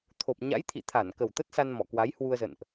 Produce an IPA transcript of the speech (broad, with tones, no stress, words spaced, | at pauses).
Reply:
t̪ʰo˨˩p̚ ɲa̰˧˥jt̪ʰḭ˧˨t̪ʰa˧˩n kə˨˩wt̪ə˦˥t̚sa˧n mɔ˧˩kwa˨˦jhwu˧ə̯zə̰˧˨nʔ